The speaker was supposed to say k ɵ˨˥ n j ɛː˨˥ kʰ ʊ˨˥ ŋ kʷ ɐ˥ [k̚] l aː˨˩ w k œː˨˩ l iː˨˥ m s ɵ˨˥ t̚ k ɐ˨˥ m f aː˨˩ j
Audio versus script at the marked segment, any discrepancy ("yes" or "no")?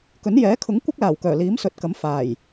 no